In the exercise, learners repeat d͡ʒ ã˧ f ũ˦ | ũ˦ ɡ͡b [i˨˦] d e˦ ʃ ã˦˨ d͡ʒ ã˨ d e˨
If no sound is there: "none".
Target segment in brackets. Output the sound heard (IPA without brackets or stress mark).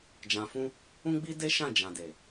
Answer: i˦